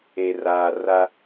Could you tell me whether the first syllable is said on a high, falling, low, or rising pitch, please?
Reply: low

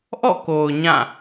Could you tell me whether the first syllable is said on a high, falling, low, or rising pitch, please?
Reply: falling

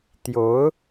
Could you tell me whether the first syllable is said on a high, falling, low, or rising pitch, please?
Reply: rising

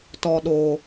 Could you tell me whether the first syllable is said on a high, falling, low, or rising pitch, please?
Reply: low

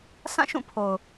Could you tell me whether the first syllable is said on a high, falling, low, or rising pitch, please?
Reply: falling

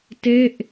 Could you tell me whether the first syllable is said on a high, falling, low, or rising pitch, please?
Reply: falling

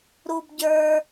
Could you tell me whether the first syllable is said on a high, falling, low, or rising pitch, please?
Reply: high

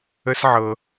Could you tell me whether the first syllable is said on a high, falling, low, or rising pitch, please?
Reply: high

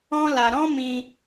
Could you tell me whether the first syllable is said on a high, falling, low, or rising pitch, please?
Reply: high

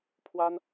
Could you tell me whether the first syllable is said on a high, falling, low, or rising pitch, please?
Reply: high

